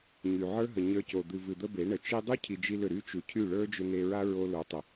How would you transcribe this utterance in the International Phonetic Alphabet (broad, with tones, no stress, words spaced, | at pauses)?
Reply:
ɲy˨ʕə˞˦ɦə˨ ɲə˞˧co˨ d̪ɨ˨vɨ˨d̪ə˧ be˨˦ɳə˨ t͡ʃi˧dˤu˦ cʰi˧d͡ʒi˦lʏ˦˨ ɾy˦ t͡ʃu˨cʰy˦˨ ɭə˞˦d͡ʒʏ˧ne˧ɹa˦ ɹo˦ lo˨˦tˤə˨